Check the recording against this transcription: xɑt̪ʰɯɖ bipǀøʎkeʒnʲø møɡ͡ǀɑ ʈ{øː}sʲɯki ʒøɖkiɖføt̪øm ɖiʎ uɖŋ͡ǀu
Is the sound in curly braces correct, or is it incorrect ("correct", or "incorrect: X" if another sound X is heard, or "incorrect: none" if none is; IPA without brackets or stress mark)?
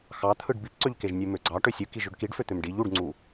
incorrect: ø